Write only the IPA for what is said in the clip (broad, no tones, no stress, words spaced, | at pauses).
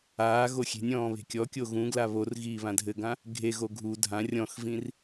aːɣo xʲe̤nʲɔ̃ː βe̤kʲɔkʲo ɣũɡla βor ɣiːβãdʱɘɡã | ɡʱeɣo ɡʱu dʱã rʲɔ̃xvĩr